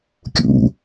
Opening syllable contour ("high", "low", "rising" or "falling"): low